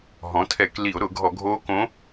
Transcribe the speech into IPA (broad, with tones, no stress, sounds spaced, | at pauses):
ɦ ɔ̃˩˥ tʰ ɛ˧˩˧ k l i˧˩˧ o̯ ɾ ʊ˧˩˧ ɡʱ ɔ˧˩˧ ɡʱ oː˧˥ k õ˧˥